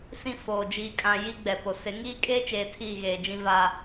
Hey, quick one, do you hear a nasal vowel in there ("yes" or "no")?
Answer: yes